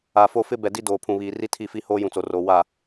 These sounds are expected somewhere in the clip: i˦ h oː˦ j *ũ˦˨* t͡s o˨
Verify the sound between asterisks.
incorrect: ũ˨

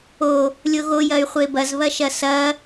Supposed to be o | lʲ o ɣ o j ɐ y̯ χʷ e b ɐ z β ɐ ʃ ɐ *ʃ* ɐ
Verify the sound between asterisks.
incorrect: s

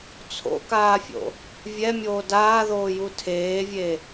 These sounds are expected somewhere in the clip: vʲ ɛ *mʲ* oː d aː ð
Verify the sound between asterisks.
correct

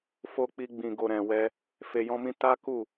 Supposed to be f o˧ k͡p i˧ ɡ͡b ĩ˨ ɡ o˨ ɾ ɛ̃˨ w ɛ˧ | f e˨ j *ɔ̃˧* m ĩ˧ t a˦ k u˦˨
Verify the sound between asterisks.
correct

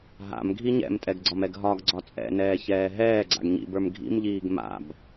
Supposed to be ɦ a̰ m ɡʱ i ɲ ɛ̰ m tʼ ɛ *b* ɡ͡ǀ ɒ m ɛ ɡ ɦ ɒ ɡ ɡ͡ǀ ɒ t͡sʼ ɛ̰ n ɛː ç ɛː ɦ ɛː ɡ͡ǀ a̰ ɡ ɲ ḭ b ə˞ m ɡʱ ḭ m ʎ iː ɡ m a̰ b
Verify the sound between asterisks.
incorrect: ɡ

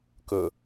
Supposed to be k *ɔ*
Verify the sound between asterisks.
incorrect: ɵ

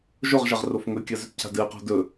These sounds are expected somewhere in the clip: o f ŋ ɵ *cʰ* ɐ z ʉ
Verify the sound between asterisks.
incorrect: kʲ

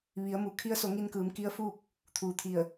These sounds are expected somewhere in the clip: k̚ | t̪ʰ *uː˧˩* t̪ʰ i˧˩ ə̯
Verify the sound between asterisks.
incorrect: uː˩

